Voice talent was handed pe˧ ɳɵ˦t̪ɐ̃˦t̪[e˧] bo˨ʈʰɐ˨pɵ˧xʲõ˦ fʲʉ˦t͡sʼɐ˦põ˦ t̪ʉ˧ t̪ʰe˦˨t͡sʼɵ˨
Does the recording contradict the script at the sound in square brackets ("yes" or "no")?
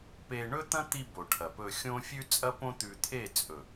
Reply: yes